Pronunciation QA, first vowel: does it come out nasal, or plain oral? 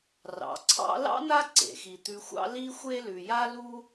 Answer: oral